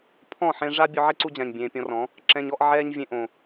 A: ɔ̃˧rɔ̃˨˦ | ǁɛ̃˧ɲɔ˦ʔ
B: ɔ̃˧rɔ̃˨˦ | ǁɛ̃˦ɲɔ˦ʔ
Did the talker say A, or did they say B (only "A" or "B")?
A